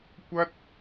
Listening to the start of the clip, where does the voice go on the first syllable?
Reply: high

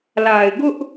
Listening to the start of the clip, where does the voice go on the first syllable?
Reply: low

